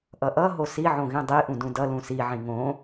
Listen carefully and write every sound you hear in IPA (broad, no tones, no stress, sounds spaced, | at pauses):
ʔ ʌ ʔ ʌ ɦ o s i ʕ õ ɣ ĩ dˤ i ʔ ũ d ũ d ʌ l ũ s i ʕ ĩ ŋ õ